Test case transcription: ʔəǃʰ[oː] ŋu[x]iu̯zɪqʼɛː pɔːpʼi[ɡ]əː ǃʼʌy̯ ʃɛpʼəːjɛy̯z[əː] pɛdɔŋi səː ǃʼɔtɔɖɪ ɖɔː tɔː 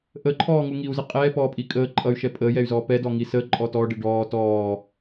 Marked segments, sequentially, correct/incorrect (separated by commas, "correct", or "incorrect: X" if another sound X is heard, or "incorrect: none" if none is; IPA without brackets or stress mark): incorrect: ɔː, incorrect: ŋ, incorrect: kʼ, incorrect: ɔː